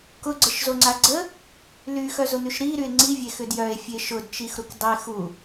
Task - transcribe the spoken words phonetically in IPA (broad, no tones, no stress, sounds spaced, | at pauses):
k ʊ ɡ͡ǀ ə ʃ z o ŋ͡ǀ a ɡ͡ǀ ə | l y x œ z ʊ n̪ y ʃ ɾ i ɾ y e̯ ŋ͡ǀ i vʲ e x ʏ d j œ e̯ fʲ e ʃ ʊ d t͡ʃ i x ɾ u k dˤ e x u